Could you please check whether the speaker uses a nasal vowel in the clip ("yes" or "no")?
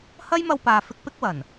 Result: no